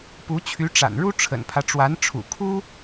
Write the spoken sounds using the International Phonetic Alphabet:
p u˧˥ t͡ɕʰ y˧˥ ʈ͡ʂ a̰˨˩ n ɻ u˥ ʈ͡ʂʰ ə̰˨˩ n pʰ ä˦ ʈ͡ʂ w a˧˥ n ʈ͡ʂʰ ṵ˨˩ kʰ u˥

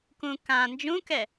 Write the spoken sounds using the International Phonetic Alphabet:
k ũ k ã n d͡ʒ ũ k ɛ

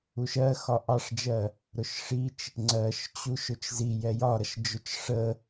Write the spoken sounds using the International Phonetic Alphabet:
u ʃ ɜ x ɒ ʔ ɑ ʂ d͡ʒ ɜ | ɾ ʊ ʃ ʂ i t͡ʃ | ŋ͡ǀ ɜ ʃ t͡ɕ u ʃ ʊ t͡ʃ z i j ɛ j ɒ ɾ ʌ ʃ d͡ʒ ʊ t͡ʃ ʂ ə

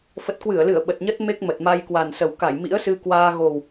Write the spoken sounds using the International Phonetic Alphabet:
f ə˨˩ t̚ k w ɨ˧˩ ə̯ l ɨ˧˩ ə̯ ɓ ə˨˩ t̚ ɲ ə˦˥ t̚ m e˦˥ k̚ m ə˨˩ t̚ m a˧ j k w a˨˩ n s ə˨˩ w k a˧˩ j m ḭ˧˥ ə̯ s ɨ˧ k w aː˧ ɣ o˨˩ w

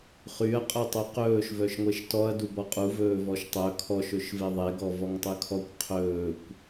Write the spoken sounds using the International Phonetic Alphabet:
χ y ɐ̯ qʼ œ tˤ y q ɵː ʃ v œ ʃ ŋʷ e ʃ t ɔ ɐ̯ d u b ɔ qʼ u v ɵː v ɔ ʃ tˤ œ kʰ ɔ ʃ ɵ ʃ v e ðˤ e ɡ ɔ v ɔ ŋ tˤ ʉ kʰ ɔ kʷ qʰ ɵː kʷ

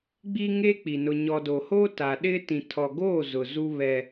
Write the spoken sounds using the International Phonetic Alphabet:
ɡ͡b iː˦ ŋ eː˦ k͡p i˨ n ʊ˨ ɲ ɔ˨ d o˨ h oː˦ t a˨ ɗ ɪ˦ t ĩ˨ tʰ ɔ˨ ɡ oː˦˨ z ʊ˨ z u˦ β ɛ˦

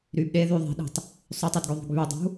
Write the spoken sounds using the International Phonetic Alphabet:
ɾ y b ɗ e ð y ðˤ e̤ ɗ i̤ tˤ | sˤ y tˤ y d ɡ ø ðˤ ṳ ɡ β y dˤ ṳ

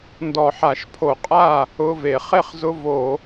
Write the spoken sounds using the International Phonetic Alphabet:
n d ɔ˧˩˧ ħ a˧˩˧ ʃ pʰ o˧˩˧ qʼ a˥˩ | ʊ˧˥˧ v e˧˩˧ χ e˥˩ χ z ʊ˧˥˧ v o˧˩˧

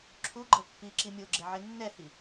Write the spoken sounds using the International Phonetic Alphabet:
ǁʰ u ɡ͡ǃ ʌ pː i ǁ i mʲ o ɡ͡ǁ ɛ ʕ e nː ɛ h i

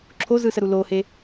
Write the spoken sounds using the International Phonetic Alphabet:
ǁʰ o z ɯ s ə ɾ u l o h e

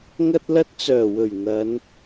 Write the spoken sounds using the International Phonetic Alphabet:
ŋ ɐ˧ t̚ l ɐ˧ t̚ t͡s œː˨˩ w ɵ˨˩ ɥ n̪ ɐ˨˧ n

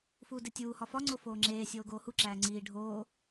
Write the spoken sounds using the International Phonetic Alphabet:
f uː d e tʲ uː h ɒ f ɒ ŋ͡ǀ o f oː ŋ͡ǁ eː sʲ oː ɡ oː h u ǁ æː ŋ͡ǀ iː ɖʱ oː

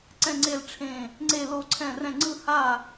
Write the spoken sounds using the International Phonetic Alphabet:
ǀ ɛ̃˥˧ ŋ͡ǀ e˥˧ l ʈ͡ʂʰ ẽ˥˧ | ŋ͡ǀ e˥˧ l o˥˧ ǀʰ ɛ̃˥˧ r ɛ̃˥˧ ŋ͡ǀ ɯ˥˧ h a˥˧

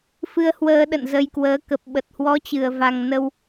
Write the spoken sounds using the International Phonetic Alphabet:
f ɨ˧ ə̯ h w əː˧ ɗ ə̰˧˨ n z ə˧ j k w əː˨˦ k ə˨˩ p̚ ɓ ə˨˩ t̚ h w ɔ˨˦ t͡ɕ ɨ˨˩ ə̯ v a˨˩ ŋ n ə˧ w

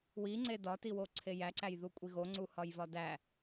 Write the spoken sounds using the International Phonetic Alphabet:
w i ŋ͡ǀ e d ɒ t i w o ǀʰ e j æ ǀ æ j ð u kʷʼ i ɣ o ŋ͡ǀ u h ɒ j v ɒ d æ

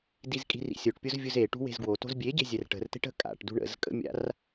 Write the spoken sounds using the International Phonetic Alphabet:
d i z kʼ i̤ r ḭ sʲ o ʈ pʲ o z vʲ u z e ʈ ṳ w e̤ z ɡ w o t o̤ z bʲ e ɟ e̤ zʲ ɛ r ʈ ə̤ r t e̤ ʈ ə̤ kʼ a̰ ʈ d ṳ ɳ ə̰ z kʼ ə̰ mʲ a̰ r

